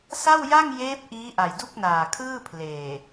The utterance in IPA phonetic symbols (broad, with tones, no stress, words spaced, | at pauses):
sa˥˩wja˥˩ŋ jeː˦˥p̚ ʔiː˦˥ʔa˨˩jdu˥˩k̚naː˨˩ kʰɯː˥˩pʰleː˨˩